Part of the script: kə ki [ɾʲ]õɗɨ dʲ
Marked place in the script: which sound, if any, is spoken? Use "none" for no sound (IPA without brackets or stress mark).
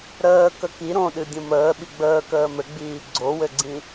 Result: ɾ